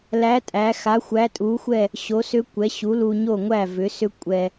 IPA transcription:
l æ˨˥ tʼ æ˩˧ x a˨˥ xʷ æ˨˥ tʼ u˨˥ xʷ ɛ˥˨ | ɕ o˨˥ s ʏ˦˥ kʷ ɛ˨˥ ɕ u˨˥ l u˧ ɲ o˥˨ ŋʷ æ˥˨ v ʏ˨˥ s ʏ˦˥ kʷʼ ɛ˧

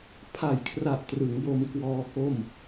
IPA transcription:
pʰ a˨˩ j kʰ r a˨˩ ʔ t r ɯ˩˦ ŋ b o˧ m k w ɔː˧ k o˥˩ m

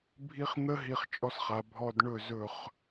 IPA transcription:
bʱ i˦ χ n̪ ə˦ ɦ i˧ χ t͡ʃʼ ɔ˧ s χ a˨ bʱ ɔ˧ d ɳ ɵ˦˨ z ɵ˦˨ χ

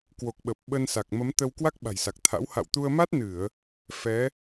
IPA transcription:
k w o˨˩ k̚ ɓ ə˨˩ p̚ ɓ ə˧ n s a˨˩ k̚ m ə˨˦ m t̪ ə˧ w k w a˦˥ k̚ ɓ a̤˨˩ j s a˨˩ k̚ t̪ʰ a̰˧˥ w h a̰˧˨ w t̪ u˧ ə̯ m a˦˥ t̚ n ɨ˧˩˨ ə̯ | f ɛ˨˦

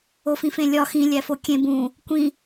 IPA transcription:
o f ĩ f ẽ lʲ ɒ x ĩ lʲ æ f o kʲ ẽ b ũ | kʷ ĩ

